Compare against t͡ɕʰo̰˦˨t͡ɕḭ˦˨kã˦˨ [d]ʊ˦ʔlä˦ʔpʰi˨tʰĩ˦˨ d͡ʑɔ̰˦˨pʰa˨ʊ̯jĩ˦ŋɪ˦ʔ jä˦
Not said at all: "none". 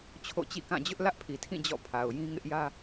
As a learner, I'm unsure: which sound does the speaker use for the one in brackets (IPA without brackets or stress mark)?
d͡ʑ